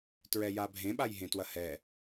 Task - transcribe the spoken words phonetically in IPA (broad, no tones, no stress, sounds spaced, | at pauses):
t ɹ ɛ j a bʱ ẽ ɓ a j ɦ ẽ t w ɐ h ɛ